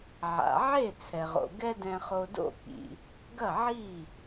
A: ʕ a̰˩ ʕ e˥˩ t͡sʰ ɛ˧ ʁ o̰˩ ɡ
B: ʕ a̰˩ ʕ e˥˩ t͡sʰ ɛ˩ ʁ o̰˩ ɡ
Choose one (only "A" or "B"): B